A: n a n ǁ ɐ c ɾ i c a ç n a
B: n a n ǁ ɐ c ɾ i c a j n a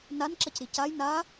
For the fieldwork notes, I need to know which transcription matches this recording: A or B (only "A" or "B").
B